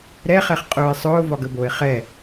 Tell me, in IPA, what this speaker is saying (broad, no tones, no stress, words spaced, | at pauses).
ɾɛχɛχ qʼʊːɪ̯sˤʊː vɒɡəboɪ̯ χɛ